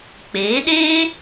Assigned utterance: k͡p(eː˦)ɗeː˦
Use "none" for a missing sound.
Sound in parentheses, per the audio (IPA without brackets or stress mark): eː˨˦